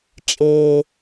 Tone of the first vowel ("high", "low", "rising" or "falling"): low